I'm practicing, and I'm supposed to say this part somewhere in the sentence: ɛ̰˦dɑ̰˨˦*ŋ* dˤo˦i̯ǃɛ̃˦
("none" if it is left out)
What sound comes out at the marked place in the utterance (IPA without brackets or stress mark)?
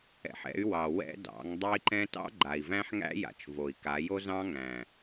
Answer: ŋ